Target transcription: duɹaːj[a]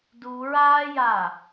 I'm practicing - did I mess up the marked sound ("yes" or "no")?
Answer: no